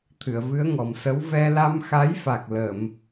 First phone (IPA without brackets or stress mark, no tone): t̪ʰ